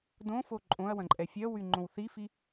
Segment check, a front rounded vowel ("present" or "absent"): present